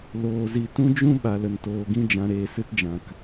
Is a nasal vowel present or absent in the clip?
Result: present